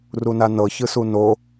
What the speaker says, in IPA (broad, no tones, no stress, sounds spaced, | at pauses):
r u n a n ɤ ç ɯ s u n o